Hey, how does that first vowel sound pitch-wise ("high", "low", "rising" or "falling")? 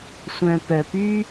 low